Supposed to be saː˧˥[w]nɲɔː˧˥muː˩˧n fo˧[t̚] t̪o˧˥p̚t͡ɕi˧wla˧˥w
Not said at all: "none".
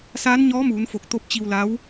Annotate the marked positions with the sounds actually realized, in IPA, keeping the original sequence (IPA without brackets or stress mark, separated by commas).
none, k̚